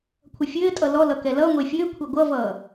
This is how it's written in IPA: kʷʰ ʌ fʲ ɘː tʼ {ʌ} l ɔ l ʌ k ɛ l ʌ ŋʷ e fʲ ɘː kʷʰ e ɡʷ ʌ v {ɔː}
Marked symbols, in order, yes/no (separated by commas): yes, no